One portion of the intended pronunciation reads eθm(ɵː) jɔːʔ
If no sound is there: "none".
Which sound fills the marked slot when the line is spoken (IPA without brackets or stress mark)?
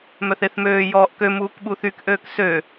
øː